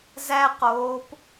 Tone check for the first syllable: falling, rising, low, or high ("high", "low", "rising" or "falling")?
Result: high